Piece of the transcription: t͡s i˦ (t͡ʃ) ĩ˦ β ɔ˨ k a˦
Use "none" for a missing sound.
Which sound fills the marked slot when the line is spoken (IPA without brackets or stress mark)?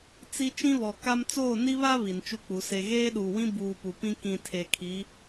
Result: t͡ʃ